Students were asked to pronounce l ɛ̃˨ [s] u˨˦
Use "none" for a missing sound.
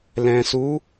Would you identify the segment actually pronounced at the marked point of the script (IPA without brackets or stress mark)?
s